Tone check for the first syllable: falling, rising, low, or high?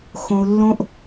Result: high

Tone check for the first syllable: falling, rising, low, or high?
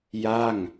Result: falling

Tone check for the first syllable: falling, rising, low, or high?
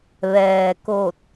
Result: low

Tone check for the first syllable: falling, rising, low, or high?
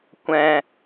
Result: low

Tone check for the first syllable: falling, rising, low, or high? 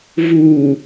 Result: low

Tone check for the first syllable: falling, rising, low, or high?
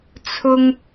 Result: high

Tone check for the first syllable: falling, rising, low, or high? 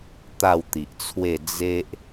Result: falling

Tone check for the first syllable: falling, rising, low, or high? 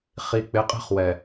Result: low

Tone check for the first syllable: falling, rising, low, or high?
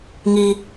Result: low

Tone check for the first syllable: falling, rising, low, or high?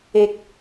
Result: high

